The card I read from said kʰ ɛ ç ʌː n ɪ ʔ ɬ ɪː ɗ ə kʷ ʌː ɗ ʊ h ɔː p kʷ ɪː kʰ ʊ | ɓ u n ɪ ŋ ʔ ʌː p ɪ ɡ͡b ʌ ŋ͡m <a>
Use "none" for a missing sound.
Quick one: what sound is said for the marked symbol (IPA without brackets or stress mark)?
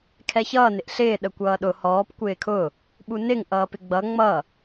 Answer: ʌ